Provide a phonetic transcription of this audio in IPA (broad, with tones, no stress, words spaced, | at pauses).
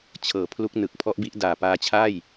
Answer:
t͡ɕʰɤː˩˦pʰlu˦˥k̚nɯ˨˩k̚ pʰɔ˦˥ʔbi˦˥ʔ daː˨˩paː˧t͡ɕʰa˥˩j